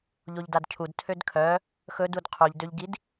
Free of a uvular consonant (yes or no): no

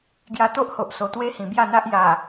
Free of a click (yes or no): yes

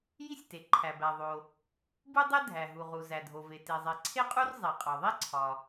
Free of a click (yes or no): no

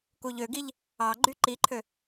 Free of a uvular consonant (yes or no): yes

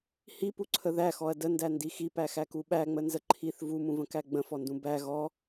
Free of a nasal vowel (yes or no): no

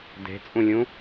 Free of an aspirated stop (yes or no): yes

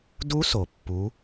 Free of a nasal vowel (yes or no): yes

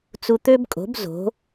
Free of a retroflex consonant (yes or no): yes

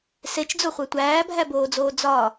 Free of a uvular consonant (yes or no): no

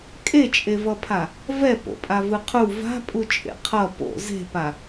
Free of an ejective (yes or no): no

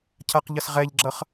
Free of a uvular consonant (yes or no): no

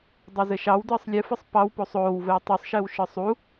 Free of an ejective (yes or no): yes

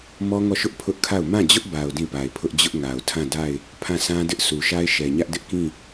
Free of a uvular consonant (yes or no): yes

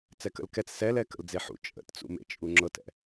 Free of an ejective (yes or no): no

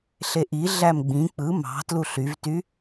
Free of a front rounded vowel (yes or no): no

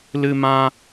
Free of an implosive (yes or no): yes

